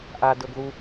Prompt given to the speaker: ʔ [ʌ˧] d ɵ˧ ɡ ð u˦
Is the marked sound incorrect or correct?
incorrect